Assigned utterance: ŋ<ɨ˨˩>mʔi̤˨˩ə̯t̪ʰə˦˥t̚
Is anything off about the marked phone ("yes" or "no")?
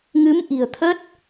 yes